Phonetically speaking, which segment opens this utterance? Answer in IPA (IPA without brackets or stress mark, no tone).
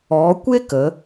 ɔ